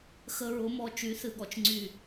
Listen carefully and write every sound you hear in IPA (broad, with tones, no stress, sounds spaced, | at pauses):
x ə˧ ɹ ʊ˨˦ m ɔ˨ t͡ʃ y˨˦ θ ɨ˨ ɠ ɔ˨ t͡ʃ ŋ͡ǀ y˦˨